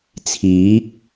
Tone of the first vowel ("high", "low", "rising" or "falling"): rising